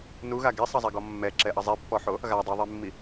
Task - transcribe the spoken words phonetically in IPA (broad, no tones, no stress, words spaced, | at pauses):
nuɣa ɡesˤɐzˤɛɡɔ mːɛǁɛʔɐ zˤepːɔħo | ɣa dˤɨðˤemːi